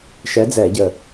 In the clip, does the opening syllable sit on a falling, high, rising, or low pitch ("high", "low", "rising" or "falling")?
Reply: rising